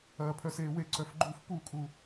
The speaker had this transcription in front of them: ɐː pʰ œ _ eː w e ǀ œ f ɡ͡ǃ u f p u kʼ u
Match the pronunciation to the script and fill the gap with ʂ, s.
s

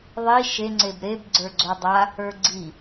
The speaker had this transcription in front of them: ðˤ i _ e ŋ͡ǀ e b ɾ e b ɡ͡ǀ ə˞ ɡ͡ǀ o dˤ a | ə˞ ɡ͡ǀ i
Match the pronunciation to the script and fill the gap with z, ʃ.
ʃ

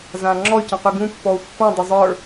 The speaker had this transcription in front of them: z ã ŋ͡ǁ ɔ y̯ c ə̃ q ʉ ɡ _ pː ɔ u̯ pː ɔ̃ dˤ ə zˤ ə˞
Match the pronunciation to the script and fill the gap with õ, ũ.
ũ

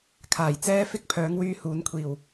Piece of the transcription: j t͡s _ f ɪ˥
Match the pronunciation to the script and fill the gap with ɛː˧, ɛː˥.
ɛː˧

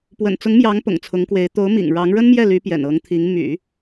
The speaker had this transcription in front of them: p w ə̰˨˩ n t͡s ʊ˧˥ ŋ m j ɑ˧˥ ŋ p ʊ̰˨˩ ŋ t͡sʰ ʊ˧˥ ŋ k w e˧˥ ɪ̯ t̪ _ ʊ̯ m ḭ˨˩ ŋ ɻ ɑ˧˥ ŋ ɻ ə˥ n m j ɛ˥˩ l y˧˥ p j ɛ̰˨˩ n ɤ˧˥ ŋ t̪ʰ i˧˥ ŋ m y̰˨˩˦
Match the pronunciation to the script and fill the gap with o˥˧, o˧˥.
o˧˥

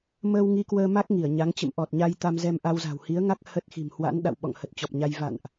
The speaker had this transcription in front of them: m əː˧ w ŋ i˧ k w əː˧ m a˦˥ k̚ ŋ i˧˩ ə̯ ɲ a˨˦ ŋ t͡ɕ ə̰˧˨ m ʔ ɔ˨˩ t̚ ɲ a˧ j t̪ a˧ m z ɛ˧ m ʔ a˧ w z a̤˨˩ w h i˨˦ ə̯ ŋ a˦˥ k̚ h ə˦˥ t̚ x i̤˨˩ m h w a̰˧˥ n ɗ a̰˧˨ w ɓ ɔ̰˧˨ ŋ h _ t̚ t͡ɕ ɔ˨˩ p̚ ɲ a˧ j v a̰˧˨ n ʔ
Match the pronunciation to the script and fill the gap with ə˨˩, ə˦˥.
ə˨˩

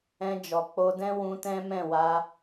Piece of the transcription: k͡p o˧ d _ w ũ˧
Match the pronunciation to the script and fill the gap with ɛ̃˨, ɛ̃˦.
ɛ̃˦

